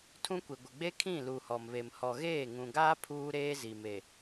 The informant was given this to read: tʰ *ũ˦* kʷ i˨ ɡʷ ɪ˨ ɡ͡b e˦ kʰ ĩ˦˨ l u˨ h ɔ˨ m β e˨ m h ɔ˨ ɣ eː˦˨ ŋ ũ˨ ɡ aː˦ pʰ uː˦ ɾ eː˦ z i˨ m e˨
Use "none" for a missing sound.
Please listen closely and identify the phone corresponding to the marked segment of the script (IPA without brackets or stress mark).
ũ˦